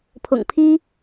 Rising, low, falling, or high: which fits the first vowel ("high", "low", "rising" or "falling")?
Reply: low